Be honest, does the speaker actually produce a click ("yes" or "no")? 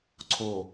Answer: yes